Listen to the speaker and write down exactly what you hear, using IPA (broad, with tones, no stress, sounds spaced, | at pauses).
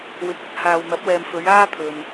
w ɪ˨ k̚ ɵ˥ t̚ h aː˨ w n̪ ɐ˨˥ p̚ w ɛː˨ m f ɵ˨˧ ɥ aː˥ t̪ʰ ɵ˨ n